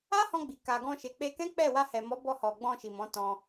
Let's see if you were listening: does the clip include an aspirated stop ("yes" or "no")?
no